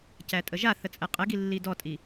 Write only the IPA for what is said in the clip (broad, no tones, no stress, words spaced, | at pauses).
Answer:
cætʼəʒaθə t͡sʼɛqʼɘɡi lːidɔtʼi